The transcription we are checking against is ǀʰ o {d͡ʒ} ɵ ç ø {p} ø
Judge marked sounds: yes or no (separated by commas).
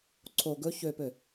no, yes